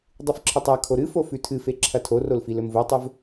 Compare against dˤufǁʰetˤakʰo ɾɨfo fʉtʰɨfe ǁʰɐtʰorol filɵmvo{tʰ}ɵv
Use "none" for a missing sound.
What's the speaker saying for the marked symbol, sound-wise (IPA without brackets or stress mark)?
tˤ